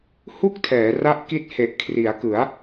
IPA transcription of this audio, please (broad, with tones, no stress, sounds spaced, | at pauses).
h u˥˩ k̚ tʰ ɛː˩˦ r a˦˥ ʔ k i˦˥ t̚ h e˨˩ ʔ kʰ r i˩˦ a̯ k ɯ˩˦ a̯